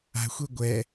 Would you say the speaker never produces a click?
yes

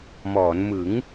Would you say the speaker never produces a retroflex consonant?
yes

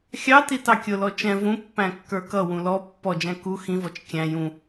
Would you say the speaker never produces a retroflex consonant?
yes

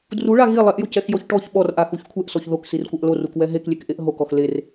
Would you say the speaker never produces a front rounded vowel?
yes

